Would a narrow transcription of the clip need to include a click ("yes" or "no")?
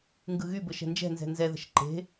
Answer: yes